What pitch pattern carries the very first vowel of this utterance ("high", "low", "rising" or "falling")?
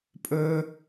low